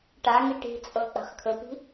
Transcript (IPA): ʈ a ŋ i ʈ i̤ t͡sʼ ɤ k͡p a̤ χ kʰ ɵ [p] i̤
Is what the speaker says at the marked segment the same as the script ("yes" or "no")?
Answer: yes